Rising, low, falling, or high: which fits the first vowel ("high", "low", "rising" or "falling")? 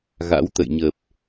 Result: rising